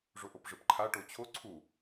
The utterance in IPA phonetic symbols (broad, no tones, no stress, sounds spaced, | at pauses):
ʐ o ʔ o p ʐ ɯ p ǃʰ a ʈ o t͡ɕʰ o ǀʰ u